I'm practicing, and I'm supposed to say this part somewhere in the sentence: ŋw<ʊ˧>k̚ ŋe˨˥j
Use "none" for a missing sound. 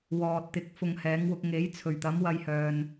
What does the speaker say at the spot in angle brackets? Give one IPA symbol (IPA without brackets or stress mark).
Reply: ʊ˧